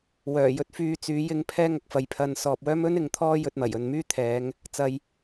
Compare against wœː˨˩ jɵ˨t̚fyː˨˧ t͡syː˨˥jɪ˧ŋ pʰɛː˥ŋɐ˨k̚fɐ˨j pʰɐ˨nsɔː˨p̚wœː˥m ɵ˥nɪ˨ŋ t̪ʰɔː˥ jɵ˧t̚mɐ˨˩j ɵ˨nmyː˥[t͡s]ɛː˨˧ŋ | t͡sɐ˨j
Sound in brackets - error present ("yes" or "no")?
yes